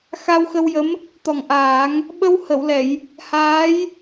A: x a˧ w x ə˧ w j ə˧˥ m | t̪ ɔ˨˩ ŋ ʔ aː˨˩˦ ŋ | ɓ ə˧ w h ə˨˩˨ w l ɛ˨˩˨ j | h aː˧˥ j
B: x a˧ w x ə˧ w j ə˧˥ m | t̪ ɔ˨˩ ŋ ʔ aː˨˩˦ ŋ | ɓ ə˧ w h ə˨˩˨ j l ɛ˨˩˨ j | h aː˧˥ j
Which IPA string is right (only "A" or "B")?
A